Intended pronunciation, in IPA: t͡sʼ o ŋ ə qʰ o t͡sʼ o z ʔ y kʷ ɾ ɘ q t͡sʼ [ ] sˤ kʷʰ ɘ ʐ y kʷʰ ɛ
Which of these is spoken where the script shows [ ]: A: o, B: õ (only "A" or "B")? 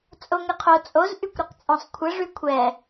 B